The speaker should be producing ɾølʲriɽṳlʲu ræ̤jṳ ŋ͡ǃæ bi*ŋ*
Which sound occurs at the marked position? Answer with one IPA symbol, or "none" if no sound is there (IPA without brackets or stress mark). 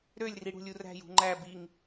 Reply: ŋ